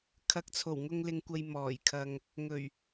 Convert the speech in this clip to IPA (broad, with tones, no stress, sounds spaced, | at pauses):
kʰ ɐ˨ k̚ t͡sʰ o˨˩ w ŋ ʊ˧ ŋ l ɪ˧ ŋ kʷ ɐ˧ j m ɔː˨˩ j kʰ ɐ˧ ŋ | ŋ ɵ˨˩ ɥ